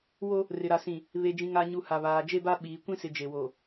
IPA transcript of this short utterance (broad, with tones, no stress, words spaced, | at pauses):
wo˦ | rɪ˨ɾa˨sĩ˨ | βe˨d͡ʒĩ˨ ŋa˨ɲu˨ ha˨βaː˨d͡ʒe˦ba˦ ɓiː˨ kʷĩ˦sɪ˨ d͡ʒe˨wo˨